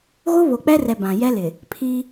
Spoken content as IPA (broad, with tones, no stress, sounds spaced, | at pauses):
ɣ o˦ β o˨ k͡p ɛ˦ r ɛ˨ b ã˨ j ɛ˦ l ɪ˨ | pʰ i˦